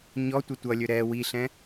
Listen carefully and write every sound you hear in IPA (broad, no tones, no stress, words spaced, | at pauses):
ɲɔ tʷɘtʷʌlʲɵ ɾɛ wiɬɛ̃